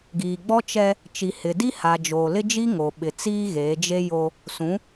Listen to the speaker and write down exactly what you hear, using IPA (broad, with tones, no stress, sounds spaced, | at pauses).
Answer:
ɡ iː˨ ɡ͡b ɔ˦ t͡ʃ ɛ˦ | t͡ʃ i˨ h ɪ˨ d i˦ h a˨ d͡ʒ oː˨ l ɪ˦ d͡ʒ i˦ ŋ o˨ ɓ ɪ˨ t͡s iː˦ ɣ eː˨˦ d͡ʒ e˦ j o˦ | s ũ˨˦